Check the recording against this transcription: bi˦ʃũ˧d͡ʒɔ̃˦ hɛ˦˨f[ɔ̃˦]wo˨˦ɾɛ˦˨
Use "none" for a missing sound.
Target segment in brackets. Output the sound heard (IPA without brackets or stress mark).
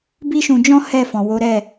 ɔ̃˨